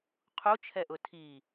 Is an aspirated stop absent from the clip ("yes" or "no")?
no